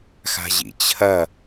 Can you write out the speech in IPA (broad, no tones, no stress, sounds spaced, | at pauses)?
x a̤ ʑ ḭ t͡ɕʰ ɐ